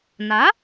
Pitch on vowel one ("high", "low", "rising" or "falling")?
rising